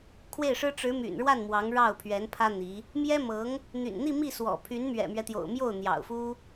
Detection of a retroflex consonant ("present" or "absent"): present